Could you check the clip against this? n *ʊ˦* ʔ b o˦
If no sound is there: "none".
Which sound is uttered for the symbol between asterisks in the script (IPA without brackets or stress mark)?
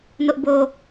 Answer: ʊ˦